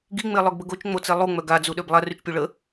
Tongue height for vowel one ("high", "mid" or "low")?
high